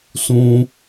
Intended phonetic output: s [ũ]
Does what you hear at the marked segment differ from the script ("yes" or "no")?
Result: no